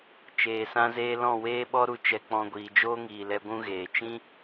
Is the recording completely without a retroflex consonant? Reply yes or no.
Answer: yes